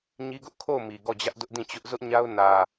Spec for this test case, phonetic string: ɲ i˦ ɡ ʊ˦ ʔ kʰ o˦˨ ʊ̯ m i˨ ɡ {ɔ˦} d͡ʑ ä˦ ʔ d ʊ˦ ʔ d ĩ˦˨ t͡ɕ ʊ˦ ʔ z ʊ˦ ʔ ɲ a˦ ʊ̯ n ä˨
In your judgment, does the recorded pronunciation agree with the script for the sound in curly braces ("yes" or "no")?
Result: no